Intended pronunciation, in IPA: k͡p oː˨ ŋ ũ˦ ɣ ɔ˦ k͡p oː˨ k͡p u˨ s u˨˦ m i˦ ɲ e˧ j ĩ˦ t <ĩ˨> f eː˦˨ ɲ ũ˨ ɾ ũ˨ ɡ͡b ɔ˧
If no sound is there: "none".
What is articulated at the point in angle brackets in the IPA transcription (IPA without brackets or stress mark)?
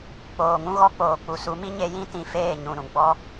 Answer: ĩ˨